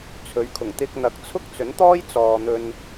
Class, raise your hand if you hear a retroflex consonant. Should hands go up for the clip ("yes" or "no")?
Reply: no